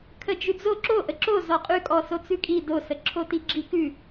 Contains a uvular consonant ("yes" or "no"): yes